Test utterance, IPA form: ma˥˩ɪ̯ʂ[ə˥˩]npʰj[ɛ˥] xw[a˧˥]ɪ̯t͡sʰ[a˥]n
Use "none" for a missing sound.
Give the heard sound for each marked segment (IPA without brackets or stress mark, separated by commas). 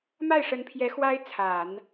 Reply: ə˧˥, ɛ˧˥, a˥, a˨˩˦